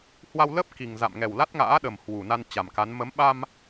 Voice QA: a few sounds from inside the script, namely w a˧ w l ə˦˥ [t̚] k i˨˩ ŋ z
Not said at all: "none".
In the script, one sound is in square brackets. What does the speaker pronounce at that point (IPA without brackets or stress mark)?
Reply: p̚